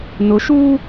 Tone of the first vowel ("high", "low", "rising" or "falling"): rising